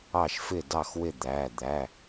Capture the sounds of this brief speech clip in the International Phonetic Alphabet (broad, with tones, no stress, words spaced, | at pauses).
ɑ˥˩ʃfɪ˥˩dɑ˥˩xwɪ˥˩ d̪æ˩˧˩d̪æ˩˧˩